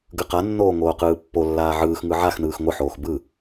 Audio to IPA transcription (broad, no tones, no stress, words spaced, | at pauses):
ɡɯqanːoː ŋoːqɯːpːolːaː ʕɯːxŋɯ ʕaxnɯːx ŋʷɯħoːx bɯ